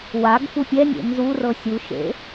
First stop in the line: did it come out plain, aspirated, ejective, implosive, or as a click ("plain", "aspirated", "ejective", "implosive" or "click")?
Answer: plain